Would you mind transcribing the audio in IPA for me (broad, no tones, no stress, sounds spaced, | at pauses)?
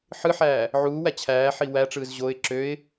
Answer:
ħ ɯ ħ æː | ʕ uː w æ t͡ɕʰ æː ħ i w æ ʈ͡ʂ ɯː z ʑ o ɪ̯ ǁ ø ɪ̯